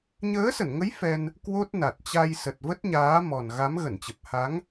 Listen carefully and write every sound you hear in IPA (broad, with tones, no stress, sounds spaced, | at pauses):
ɲ əː˨˦ s ə˧˩ n ŋ ə˨˦ j f ɛ˧ n | k w o˦˥ t̚ n a˨˩ t̚ t͡ɕ a˧ j s ə˨˩ t̚ v ə˦˥ t̚ ɲ aː˨˦ m ɔ˨˩ n ɣ a˨˦ m ɣ ə˧˩ n t͡ɕ ə˨˩ p̚ h a˨˦ ŋ